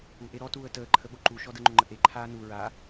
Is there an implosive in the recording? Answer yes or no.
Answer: yes